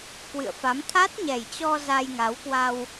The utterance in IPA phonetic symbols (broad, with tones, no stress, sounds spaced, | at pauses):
k w ɨ̰˧˨ ə̯ f a˨˦ m t̪ʰ a˦˥ t̚ ɲ ɛ˨˩ j t͡ɕ ɔ˧ z a˧ j ŋ a˨˦ w k w a˧ w